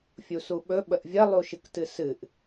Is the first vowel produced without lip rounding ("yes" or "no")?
no